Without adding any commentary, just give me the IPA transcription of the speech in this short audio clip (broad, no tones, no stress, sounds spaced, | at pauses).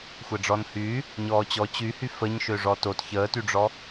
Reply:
xʷ ɛ ɖ͡ʐ ɔ n h yː | ɲ ɔː t͡ɕ ɔ t͡ɕ y h y f ə ɲ ʃ ø ʐ ɔ t o t ç əː t y ɖ͡ʐ ɔ